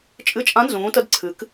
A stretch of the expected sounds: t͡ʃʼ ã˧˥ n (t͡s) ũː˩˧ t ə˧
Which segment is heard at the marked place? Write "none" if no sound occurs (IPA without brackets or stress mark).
z